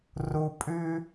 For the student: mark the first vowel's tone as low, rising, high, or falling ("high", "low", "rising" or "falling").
low